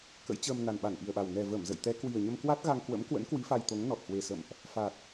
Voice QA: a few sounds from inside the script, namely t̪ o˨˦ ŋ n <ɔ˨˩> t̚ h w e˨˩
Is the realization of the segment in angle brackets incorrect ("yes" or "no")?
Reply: no